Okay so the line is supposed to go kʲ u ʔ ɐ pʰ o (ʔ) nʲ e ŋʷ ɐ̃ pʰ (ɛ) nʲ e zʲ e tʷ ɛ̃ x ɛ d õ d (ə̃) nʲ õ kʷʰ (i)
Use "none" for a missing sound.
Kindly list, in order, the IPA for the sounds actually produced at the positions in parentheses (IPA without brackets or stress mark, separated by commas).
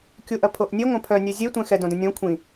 ʔ, œ, ə̃, ĩ